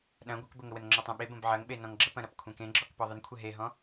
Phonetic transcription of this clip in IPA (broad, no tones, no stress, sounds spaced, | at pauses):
ɗ ɐ̃ ɡʷ ə k b ə ŋ ə w ə n ŋ͡ǁ ɔ tˤ ɐ̃ ɓ e b ə̃ b ʕ ɐ ŋ ɓ e n ɔ̃ ŋ ɡ͡ǁ ə p ɐ̃ ɾ ɐ p kʷʰ ẽ k ẽ ɡ͡ǁ ɔ k p ɔ ðˤ ə n kʷʰ e ɦ e ɦ ɔ̃